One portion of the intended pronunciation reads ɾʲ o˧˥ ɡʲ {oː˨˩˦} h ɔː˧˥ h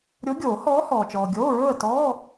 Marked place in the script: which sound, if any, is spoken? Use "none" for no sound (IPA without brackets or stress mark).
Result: oː˨˩˦